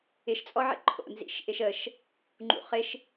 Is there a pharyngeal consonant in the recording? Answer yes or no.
yes